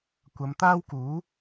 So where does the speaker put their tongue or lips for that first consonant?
velum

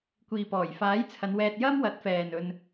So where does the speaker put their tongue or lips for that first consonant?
velum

